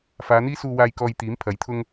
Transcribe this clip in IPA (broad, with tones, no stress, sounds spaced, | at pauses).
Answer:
f aː˨˧ n̪ iː˥ s uː˧ w aː˧ j k ɔː˧ j t̪ iː˨˥ m pʰ ɐ˨˥ j t̪ʰ ʊ˥ ŋ